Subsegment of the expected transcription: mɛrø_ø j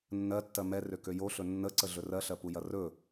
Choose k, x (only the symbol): k